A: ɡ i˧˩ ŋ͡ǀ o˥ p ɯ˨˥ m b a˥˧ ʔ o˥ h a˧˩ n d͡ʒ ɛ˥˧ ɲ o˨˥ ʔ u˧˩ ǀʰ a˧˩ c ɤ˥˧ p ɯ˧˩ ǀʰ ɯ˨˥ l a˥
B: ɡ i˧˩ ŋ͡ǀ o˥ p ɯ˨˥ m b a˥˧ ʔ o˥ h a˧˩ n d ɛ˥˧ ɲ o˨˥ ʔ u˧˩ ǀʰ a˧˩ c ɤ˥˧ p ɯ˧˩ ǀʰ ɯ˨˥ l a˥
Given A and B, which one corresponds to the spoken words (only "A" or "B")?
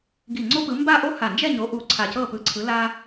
A